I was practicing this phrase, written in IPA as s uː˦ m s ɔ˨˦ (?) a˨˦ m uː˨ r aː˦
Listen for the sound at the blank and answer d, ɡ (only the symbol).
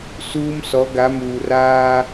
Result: ɡ